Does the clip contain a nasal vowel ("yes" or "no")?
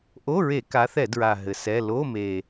no